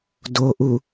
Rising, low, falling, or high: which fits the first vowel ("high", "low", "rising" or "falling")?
low